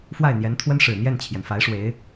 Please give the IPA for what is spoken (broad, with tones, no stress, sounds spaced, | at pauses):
f w a˥˩ ɪ̯ n̪ j ɛ˧˥ n t̪ʰ w ə˥ n ʂ ɻ̩˨˩ n̪ j ɛ˥˩ n t͡ɕʰ j ɛ˩ n f a˧˥ ɪ̯ ʂ w e˧˥ ɪ̯